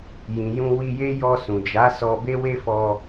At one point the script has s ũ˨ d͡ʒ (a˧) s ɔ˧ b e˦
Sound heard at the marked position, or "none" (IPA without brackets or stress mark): a˨˦